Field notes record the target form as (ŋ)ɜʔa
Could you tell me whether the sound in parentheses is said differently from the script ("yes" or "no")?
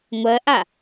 yes